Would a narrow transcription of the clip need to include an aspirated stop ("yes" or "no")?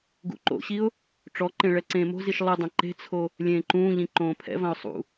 yes